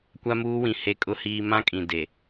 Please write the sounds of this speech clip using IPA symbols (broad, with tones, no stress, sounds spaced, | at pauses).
kʷ a˦ m uː˦ w ĩ˨ h e˦ kʼ ʊ˦ h iː˦ m ã˦ kʼ ĩ˨ d e˨